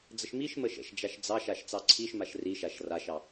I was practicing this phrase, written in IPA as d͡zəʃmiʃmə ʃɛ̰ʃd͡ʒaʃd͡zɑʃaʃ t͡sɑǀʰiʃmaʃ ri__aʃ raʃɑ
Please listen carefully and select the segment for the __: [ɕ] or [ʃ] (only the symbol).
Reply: ʃ